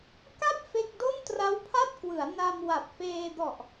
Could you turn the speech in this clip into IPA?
k a˥˩ p̚ f e˥˩ k̚ d o˥˩ n t r a˦˥ w pʰ a˥˩ t̚ k w ɯ˩˦ a̯ n a˧ m w a˨˩ p̚ f eː˧ d ɔ˨˩ ʔ

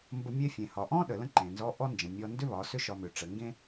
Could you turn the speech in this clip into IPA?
m b ə˧ mʲ e˧ fʲ ẽ˩ h ɒ˩ ʔ ɔ̃˥ ɗ ə˩ l ə̃˥ ǃ ẽ˩ n z ɔ˧˥ ʔ ɔ˥ n d͡ʒ ə̃˩ mʲ ɔ˧ n d ʏ˥ β ɒ˩˧ s ʏ˥ ʃ ɒ˧ m ʏ˩˧ ʈ͡ʂ ə˩˧ ŋ ɡ ẽ˥

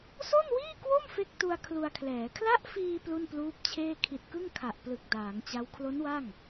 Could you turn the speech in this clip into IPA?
s o˥˩ n w iː˥˩ k w o˥˩ m f e˥˩ k̚ t u˧ a̯ kʰ l u˧ a̯ kʰ l ɛː˩˦ kʰ l a˦˥ ʔ f iː˧ p l u˥˩ n p l uː˦˥ p̚ t͡ɕʰ eː˥˩ kʰ i˨˩ t̚ k ɯ˥˩ ŋ kʰ a˨˩ ʔ p l ɯ˨˩ k̚ d aː˩˦ ŋ t͡ɕ a˦˥ w kʰ l o˦˥ n w a˥˩ ŋ

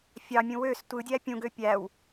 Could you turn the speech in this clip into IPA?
fʲ ɑ mʲ ũ w ø s tʷ ɯ dʲ æ pʲ ũ ɡ ø pʲ æ w

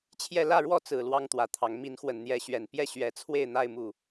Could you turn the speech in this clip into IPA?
t͡ɕʰ j ɛ˥˨ l ä˥˨ ɻ w ɔ˥˨ t͡s ɹ̩˨˩ l w ɑ˦ ŋ t̪ w ä˨˦ t̪ʰ ɑ˨˦ ŋ m i˨˦ n x w ə˨˩ n n̪ j ɛ˨˦ ɕ ɥ ɛ˨˩ n p j ɛ˦ ɕ ɥ ɛ˨˦ t͡sʰ w e˥˨ ɪ̯ n̪ a˥˨ ɪ̯ m u˥˨

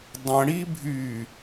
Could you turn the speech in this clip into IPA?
dˤ ə̃ ɽ i bʱ y

